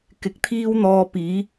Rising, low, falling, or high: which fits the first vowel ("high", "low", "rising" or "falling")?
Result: rising